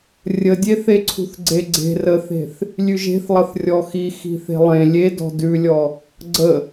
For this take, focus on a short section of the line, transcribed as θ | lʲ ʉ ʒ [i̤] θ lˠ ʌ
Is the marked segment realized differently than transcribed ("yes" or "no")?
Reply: yes